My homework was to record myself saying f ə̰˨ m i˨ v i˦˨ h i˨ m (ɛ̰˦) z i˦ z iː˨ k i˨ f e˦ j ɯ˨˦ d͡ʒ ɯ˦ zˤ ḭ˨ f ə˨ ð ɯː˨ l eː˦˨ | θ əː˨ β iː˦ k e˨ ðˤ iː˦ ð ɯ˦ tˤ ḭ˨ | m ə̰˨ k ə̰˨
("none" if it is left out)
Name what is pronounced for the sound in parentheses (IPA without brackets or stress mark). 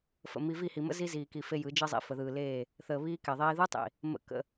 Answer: ə̰˦